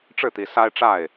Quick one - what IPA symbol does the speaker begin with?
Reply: ʈ͡ʂ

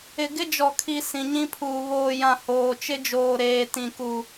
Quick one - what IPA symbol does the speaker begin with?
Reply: ɪ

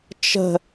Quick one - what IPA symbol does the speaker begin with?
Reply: t͡ʃ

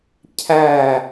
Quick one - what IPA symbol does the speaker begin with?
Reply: cʰ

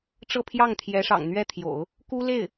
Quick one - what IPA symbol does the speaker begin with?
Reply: ʈ͡ʂ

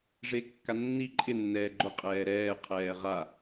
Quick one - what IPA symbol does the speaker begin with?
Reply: ʐ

